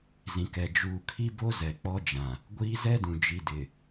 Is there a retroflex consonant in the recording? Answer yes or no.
no